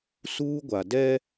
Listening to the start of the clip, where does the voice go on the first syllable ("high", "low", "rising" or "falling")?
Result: high